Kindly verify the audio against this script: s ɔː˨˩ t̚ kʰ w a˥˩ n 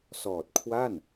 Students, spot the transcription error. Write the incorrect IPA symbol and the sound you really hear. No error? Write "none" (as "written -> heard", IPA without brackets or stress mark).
none